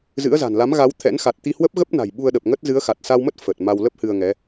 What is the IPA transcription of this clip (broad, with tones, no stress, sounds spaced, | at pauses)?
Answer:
z ɨ̰˧˥ ə̯ z a̤˨˩ n l a˨˦ m ɣ a˨˦ w t̪ʰ ɛ̰˧˥ n x a˨˩ t̚ t̪ i˧ h w ə˦˥ p̚ ɣ ə˦˥ p̚ n a̤˨˩ j ɓ u˧ ə̯ ɗ ə˨˩ p̚ ŋ ə˦˥ t̚ z ɨ˨˦ ə̯ x a˨˩ t̚ s a˧ w m ə˦˥ t̚ f ə˨˩ t̚ m a˧ w l ə˦˥ p̚ h ɨ˧ ə̯ ŋ ɛ˨˦